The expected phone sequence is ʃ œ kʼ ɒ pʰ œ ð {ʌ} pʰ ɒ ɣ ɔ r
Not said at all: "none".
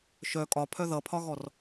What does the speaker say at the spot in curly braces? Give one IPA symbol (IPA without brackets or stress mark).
ʌ